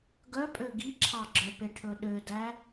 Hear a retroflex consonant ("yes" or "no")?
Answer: yes